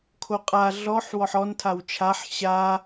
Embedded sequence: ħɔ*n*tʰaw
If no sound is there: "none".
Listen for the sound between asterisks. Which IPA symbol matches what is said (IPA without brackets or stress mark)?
n